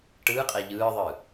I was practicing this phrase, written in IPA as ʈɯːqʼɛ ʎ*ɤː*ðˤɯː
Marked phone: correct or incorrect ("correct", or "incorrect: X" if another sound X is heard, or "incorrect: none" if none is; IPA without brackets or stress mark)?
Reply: incorrect: ɯː